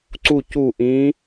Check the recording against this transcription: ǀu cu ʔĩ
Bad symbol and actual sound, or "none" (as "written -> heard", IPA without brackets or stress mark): none